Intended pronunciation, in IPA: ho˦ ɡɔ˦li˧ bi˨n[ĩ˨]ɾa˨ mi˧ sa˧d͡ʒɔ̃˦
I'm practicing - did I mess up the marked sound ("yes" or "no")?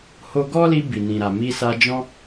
no